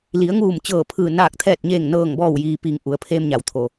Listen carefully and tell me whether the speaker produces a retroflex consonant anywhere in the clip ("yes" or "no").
no